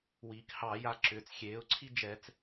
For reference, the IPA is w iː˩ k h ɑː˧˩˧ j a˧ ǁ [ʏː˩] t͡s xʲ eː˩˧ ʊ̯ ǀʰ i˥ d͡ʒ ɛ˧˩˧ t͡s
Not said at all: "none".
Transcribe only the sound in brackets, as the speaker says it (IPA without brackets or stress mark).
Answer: ʏː˩